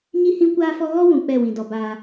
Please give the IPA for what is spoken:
ɲ i˦ h ĩ˦ kʷ aː˦ f ɔ˦ ɣ ɔ˦ w ũ˨ k͡p ɛ˦˨ w ĩ˨ d ɔ˨ b aː˦

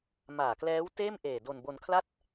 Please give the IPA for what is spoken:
m aː˨˩ k l ɛː˦˥ w t eː˥˩ m ʔ eː˨˩ d o˧ n b o˧ n kʰ l a˥˩ t̚

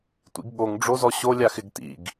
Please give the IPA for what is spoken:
tʷ ḭ ɡ ɠ o ŋ ɖ͡ʐ o z ɔ ɕ o lʲ a x ɪ ɡ t ḭ ɡ

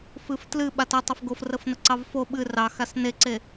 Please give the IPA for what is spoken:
f ɨ f t l ɨ ɓ a t ɛ tˤ ɛ f ɡ o f r ə f n ə ǀ ɑ v f o ɓ ɨ r ɑ x a s n e ǀ e

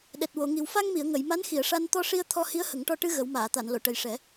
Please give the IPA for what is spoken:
ɗ ɛ˨˩ t̚ w o˨˩˨ ŋ i˨˩ w f a˧ ŋ m i˨˩˨ ə̯ ŋ ə˨˩˨ j m a˧˥ n x i˨˩˨ ə̯ ʂ a˧ n t̪ ɔ˧ ʂ i˧ ə̯ t̪ʰ ɔ˧ h i˧˥ ə̯ h ə˨˩˦ ŋ ʈ ɔ˧ ʈ ɨ˧ ɣ ə˨˩˦ w m aː˨˩˨ t̪ a˨˩˨ n l o˨˩˨ ʈ ə˨˩ j ʂ ɛ˨˩˦

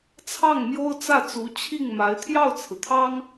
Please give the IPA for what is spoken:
t͡sʰ ɑ˥˩ ŋ m j o˥ ʊ̯ t͡s ä˥˩ t͡s u˧˥ t͡ɕʰ i˥˩ ŋ m a˧˥ ɪ̯ t̪ʰ j ɑ˥˩ ʊ̯ t͡sʰ ɹ̩˩ t̪ʰ ɑ˥ ŋ

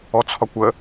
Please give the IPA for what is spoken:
ɔ t͡sʰ ɒ kʷ ə

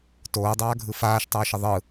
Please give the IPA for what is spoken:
t oː dˤ aː ɡʱ ɯ f aː ʃ tˤ ʊː ʃ ə ðˤ ɯ

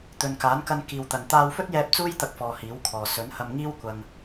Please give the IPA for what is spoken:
t̪ ɵ˨ n k aː˨˥ n k ɐ˧ n k iː˨ w t̪ ɐ˨ n t̪ aː˧ w f ɵ˥ t̚ j ɛː˧ p̚ t͡s uː˥ j t̪ ɐ˧ k̚ f ɔː˨ h iː˨˥ w kʰ ɔː˨ s ɵ˨˥ n h ɐ˧ m ŋ iː˥ w kʷ ɐ˧ ŋ

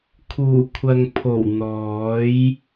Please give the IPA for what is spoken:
kʰ uː˨˩ kʷʰ ɐ˨ ŋ pʰ o˨˩ w n̪ ɔː˨˥ j

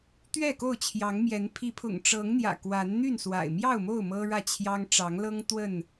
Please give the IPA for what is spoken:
t̪ ɥ ɛ˥˨ k o˥˨ ʊ̯ t͡ɕʰ j ɑ˨˦ ŋ m j ɛ˨˦ n pʰ i˨˦ pʰ ʊ̰˨˩ ŋ ʈ͡ʂ ɤ˨˦ ŋ n̪ j ä̰˨˩ k w a˨˦ n n̪ y˥˨ n s w a̰˨˩ ɪ̯ m j ɑ˥˨ ʊ̯ m o˥˨ ʊ̯ m ɤ˦ ɻ ä˥˨ t͡ɕʰ j ɑ˦ ŋ ʈ͡ʂ ɑ˨˦ ŋ l ɤ˦ ŋ t̪ w ə˥˨ n

